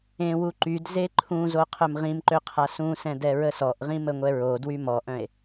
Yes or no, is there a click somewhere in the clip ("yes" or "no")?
yes